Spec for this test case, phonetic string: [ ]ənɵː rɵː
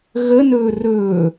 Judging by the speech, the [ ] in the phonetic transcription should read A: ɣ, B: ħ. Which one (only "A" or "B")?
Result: A